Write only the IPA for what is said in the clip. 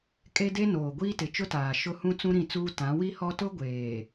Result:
kʼe˦de˦noː˨ɡʷiː˦ tɪ˨t͡ʃʊ˦taː˨ ʃʊ˦hũ˦ t͡sũ˦ɾĩ˦˨t͡suː˦ tã˨˦wi˦hɔ˦ tʊ˦ɡʷeː˨

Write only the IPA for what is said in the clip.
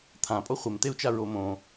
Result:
t̪ʰãpʼo χʷemt̪eu̯t͡ʃa ɹomõ

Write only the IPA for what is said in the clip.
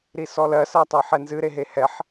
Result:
ɾisɔlɜ sɜtˤɜħɛnzɨ ɾeɦehɛħ

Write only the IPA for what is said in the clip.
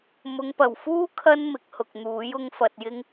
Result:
mʊ˨˧ŋpɐ˨˩wfuː˥ kʰɐ˥n mɪ˨˥k̚hʊ˨k̚n̪uː˨˥j ʊ˧ŋfɐ˨t̚jɪ˧ŋ

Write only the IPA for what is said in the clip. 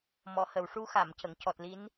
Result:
mɔ˨˩˨hə˨˩˨wʂu˧ xa˨˩˨mcə˨˩˨ŋ cɔ˨˩t̚li˧˥n

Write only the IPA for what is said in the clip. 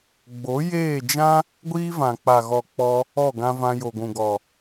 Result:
ɡ͡bo˨˦jeː˦˨d͡ʒã˦ | ɡʷiː˦vã˨ k͡pa˨ɣɔ˨k͡pɔ˧ | ɔ˦˨ɡã˧vã˧ jo˨ɡʷũ˨ɡɔ˨

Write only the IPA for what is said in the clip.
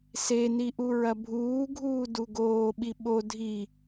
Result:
seni ʔuɹɐbʱuːɡʱuː duɡoːɓi ɓo dʱi

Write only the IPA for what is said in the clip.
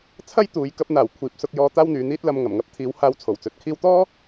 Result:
t͡sʰɐ˥jt̪uː˨˧j kɐ˧p̚n̪aː˨˩w kʷʰiː˨˥p̚sʊ˧k̚jɔː˧ t̪aː˥wn̪yː˨˧n̪iː˥t̚lɐ˧m ŋɐ˨˩mŋɐ˥p̚ t̪ʰiː˨˧whaː˧w t͡sʰo˨˩wt͡sɵ˨t̚kʰiː˥w t̪ɔː˥

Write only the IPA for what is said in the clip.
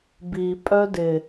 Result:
bi pʼœdɪ

